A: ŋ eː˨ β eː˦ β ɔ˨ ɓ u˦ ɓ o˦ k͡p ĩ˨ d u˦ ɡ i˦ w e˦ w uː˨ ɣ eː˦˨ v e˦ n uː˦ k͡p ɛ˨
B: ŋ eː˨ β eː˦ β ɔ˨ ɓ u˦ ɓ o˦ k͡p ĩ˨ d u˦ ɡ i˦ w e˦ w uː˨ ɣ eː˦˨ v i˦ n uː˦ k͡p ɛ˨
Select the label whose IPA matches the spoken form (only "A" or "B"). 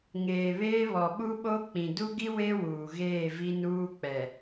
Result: B